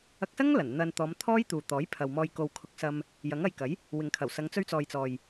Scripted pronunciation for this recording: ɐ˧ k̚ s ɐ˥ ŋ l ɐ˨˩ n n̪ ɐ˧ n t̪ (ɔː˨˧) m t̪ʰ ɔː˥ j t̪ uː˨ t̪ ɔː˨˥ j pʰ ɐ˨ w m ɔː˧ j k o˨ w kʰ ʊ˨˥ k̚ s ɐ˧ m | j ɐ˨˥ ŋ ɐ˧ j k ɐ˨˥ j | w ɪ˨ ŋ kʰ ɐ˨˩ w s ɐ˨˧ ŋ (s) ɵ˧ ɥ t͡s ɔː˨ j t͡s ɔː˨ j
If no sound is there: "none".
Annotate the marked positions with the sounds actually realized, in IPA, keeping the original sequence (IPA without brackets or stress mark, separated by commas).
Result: ɔː˨˧, t͡s